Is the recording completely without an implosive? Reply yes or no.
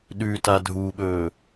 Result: no